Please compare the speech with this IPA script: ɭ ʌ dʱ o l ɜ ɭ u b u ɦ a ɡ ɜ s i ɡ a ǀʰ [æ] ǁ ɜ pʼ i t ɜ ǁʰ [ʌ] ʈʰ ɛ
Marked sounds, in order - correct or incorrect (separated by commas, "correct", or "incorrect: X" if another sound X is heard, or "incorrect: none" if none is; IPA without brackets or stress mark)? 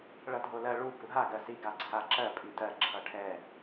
incorrect: a, correct